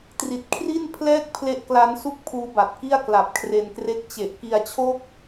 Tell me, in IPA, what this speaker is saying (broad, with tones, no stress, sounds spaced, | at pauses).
t r i˨˩ t̚ kʰ r i˥˩ n pʰ l ɛː˥˩ k̚ pʰ l e˦˥ ʔ k l a˦˥ n s u˥˩ k̚ pʰ uː˦˥ b a˨˩ t̚ k i˥˩ a̯ k l a˨˩ p̚ kʰ r e˧ n k r e˦˥ k̚ t͡ɕ e˨˩ ʔ k i˧ a̯ t͡ɕʰ oː˦˥ k̚